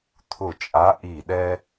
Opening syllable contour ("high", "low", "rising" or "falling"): falling